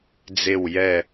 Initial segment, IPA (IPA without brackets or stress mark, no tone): d͡z